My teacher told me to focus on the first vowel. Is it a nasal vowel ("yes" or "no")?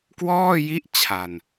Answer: no